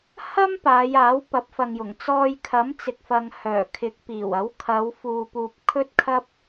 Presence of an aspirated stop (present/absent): present